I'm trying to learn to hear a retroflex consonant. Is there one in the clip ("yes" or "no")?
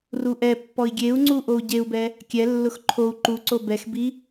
no